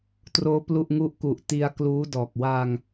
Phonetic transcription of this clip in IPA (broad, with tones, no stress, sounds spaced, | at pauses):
t r oː˦˥ p l u˥˩ ʔ ŋ u˥˩ ʔ k u˨˩ ʔ t i˧ a̯ k l uː˦˥ d ɔː˨˩ k̚ w a˧ ŋ